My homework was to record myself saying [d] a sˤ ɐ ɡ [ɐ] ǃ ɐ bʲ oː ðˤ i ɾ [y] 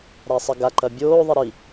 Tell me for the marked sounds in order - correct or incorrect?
incorrect: ɾ, incorrect: a, incorrect: i

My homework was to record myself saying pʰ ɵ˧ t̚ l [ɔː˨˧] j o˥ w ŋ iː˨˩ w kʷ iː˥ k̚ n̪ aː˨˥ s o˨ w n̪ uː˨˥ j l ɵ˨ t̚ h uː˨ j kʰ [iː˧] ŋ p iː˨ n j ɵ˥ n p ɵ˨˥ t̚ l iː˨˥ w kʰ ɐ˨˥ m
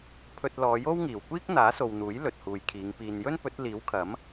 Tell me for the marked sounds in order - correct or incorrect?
correct, incorrect: iː˨˧

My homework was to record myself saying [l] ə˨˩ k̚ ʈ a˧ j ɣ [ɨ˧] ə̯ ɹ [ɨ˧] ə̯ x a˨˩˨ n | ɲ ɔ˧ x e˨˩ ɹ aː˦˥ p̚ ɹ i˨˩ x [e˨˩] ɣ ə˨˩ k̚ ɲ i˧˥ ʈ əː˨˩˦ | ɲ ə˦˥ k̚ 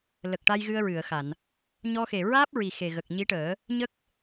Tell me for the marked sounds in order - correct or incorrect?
correct, correct, incorrect: ɨ˨˩˨, correct

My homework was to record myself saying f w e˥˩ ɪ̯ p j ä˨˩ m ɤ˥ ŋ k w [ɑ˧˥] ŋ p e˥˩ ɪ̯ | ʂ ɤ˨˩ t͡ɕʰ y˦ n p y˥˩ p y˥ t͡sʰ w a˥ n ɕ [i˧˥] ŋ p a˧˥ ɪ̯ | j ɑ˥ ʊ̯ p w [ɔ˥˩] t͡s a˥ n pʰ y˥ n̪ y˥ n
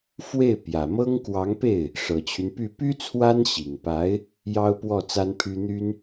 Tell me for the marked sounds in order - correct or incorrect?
correct, incorrect: i˨˩, correct

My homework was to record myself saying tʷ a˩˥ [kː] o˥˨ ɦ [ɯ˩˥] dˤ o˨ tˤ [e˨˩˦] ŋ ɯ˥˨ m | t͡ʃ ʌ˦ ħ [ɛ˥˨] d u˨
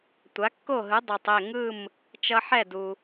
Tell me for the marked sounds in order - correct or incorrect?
correct, correct, incorrect: e˥˨, correct

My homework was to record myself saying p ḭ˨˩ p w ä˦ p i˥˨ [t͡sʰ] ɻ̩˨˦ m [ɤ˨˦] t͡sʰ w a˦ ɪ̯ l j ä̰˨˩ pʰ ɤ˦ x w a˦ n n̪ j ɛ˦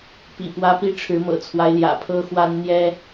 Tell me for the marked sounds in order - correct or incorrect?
incorrect: ʈ͡ʂʰ, incorrect: ɤ̰˨˩

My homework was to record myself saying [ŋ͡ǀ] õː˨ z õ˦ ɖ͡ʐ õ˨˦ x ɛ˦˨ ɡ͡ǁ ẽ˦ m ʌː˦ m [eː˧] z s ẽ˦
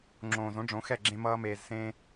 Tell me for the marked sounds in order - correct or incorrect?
incorrect: ŋ͡ǁ, correct

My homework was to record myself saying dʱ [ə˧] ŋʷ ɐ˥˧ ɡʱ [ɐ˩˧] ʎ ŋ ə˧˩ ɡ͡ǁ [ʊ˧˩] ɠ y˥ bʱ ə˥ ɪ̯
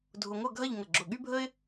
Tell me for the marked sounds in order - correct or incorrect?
incorrect: ʊ˧, incorrect: ɐ˥˧, correct

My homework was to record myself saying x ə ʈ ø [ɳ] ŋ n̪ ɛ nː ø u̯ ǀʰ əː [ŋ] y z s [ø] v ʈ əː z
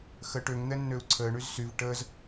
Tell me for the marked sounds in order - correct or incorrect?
incorrect: none, incorrect: ɳ, incorrect: y

